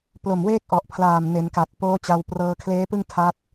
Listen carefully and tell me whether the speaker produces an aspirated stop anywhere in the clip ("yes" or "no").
yes